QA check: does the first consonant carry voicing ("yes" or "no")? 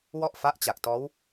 yes